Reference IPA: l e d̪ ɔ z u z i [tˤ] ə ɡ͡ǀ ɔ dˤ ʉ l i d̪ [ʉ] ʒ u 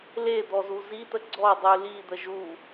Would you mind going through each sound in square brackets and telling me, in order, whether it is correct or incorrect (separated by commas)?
incorrect, incorrect